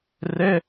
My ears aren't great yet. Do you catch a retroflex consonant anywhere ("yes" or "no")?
no